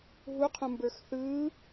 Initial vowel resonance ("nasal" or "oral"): oral